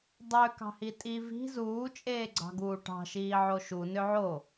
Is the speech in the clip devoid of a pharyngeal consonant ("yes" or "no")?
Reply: no